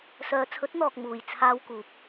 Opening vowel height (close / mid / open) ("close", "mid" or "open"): mid